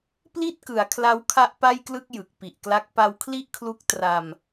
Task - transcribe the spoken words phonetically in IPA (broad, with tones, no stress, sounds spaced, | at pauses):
p l i˥˩ t̚ k ɯ˩˦ a̯ kʰ l a˦˥ w kʰ a˦˥ ʔ p a˥˩ j k l ɯ˥˩ k̚ j ɯ˨˩ k̚ p i˨˩ ʔ k l a˦˥ k̚ p a˧ w kʰ l i˥˩ ʔ kʰ l u˦˥ k̚ t r a˧ m